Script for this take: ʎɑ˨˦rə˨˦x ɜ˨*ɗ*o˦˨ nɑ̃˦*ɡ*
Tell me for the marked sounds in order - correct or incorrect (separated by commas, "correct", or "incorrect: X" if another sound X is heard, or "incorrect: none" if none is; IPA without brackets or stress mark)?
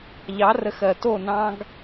incorrect: t, correct